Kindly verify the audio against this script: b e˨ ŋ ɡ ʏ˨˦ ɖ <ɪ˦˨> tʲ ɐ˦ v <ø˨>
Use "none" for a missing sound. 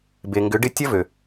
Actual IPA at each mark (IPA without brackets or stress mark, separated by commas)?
ɪ˦˨, ø˨